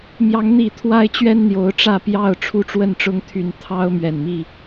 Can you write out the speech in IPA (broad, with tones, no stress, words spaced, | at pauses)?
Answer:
mjɑ˨˦ŋn̪i˨˩ t̪ʰwa˦ɪ̯t͡ɕɥɛ˦n n̪jo˨˦ʊ̯ʈ͡ʂä˥˨pjɑ˥˨ʊ̯ ʈ͡ʂʰu˥˨ʈ͡ʂwə˥˨nʈ͡ʂʊ˦ŋt̪ʰy˨˦n t̪ʰɑ˦ʊ̯mɥɛ˨˩nmi˥˨